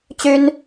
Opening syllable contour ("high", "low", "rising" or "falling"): high